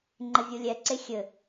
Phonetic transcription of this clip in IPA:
ŋ͡ǃ ɘ vʲ u lʲ ɛ ǀ e xʲ ɘ

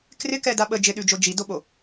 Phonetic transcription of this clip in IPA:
k r ɪ k ɛ d a ɓ ə d͡ʒ ɪ ɗ ʉ d͡ʒ o d͡ʒ i d o ɓ o

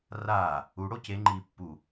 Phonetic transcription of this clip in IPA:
r aː | u ɽ o c e ŋ͡ǃ iː pː u

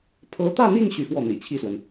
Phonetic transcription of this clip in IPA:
pʰ ɤ˧˥ t̪ ä˥˧ n̪ i˥˧ ŋ ɕ y˥˧ f w ɔ˥˩ n̪ ḭ˨˩ t͡ɕʰ i˥˩ s w ə˩ n

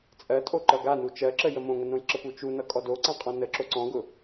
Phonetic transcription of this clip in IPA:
t͡sʼ ɜ tʼ o ǃ ʌ ɡ a n u t͡ʃ ɜ ǁ ə j ə m õ ŋ ə n õ j ǁ ə p u t͡ʃ u n ʌ kʼ ɔ d o ǀ ã qʼ ɔ̃ n ə ǁ o ǀ ɔ̃ ɡ ʊ

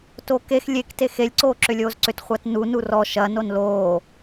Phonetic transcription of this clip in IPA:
t o k e x lʲ e k t e x e lʲ ǀ oː ǁ ʏ lʲ oː z ǀ ʏ t χʷ a t n u n u r ɔ ʃ ɐ n o n l oː

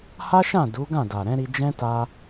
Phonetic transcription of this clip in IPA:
h a˦ ʃ ã˦˨ d u˨˦ ɡ ã˦˨ d a˨ ɾ ɛ̃˨˦ ɾ i˧ d͡ʒ ɛ̃˦ t a˧

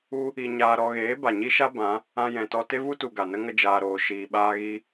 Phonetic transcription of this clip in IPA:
u˦ | i˧ ɲ aː˧ ɾ ɔ˧ ɣ eː˨˦ b a˨ ɲ i˦ ʃ a˦ b ã˨˦ | ã˧ j ɛ̃˨ t ɔ˧ t e˦ v u˦ t u˨ ɡ a˨ n ə˦ ŋ ə˦ d͡ʒ aː˧ ɾ oː˧ ʃ iː˨ ɓ aː˧ ɣ i˧

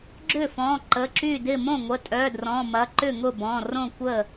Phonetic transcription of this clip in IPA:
ɡ͡ǁ ʏ˥˩ f ɔ̃˩˧˩ ǃ ə˩˧˩ ǁ y˥˩ d ɪ˥˩ m õ˥˩ ŋʷ ə˩˧˩ tʼ œ˩˧˩ d r ɔ̃˩˧˩ m ɐ˩˧˩ ǃ ʏ˥˩ ŋ ʊ˥˩ b ɔ̃˩˧˩ r õ˥˩ kʷ ə˥˩

